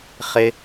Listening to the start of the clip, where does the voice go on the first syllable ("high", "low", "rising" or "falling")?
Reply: high